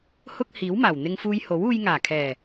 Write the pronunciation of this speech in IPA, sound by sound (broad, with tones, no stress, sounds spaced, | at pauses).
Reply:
h ʊ˧ k̚ h iː˨˥ w m aː˨˩ w n̪ ɪ˧ ŋ f uː˧ j h o˨˥ w uː˧ j ŋ aː˨˩ kʰ ɛː˨˩